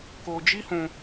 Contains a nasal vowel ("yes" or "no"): yes